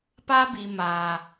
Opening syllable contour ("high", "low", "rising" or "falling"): high